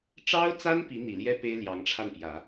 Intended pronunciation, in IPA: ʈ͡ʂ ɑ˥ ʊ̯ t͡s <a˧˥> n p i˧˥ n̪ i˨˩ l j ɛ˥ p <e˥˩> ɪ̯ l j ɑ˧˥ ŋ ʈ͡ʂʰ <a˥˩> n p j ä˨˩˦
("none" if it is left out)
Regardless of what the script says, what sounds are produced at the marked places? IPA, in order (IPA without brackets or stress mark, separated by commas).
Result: a˥, e˥, a˥˩